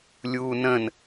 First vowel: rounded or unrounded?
rounded